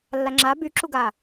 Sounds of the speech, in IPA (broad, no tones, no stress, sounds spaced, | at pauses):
lː a ŋ͡ǁ a b y ǁ u ɡ a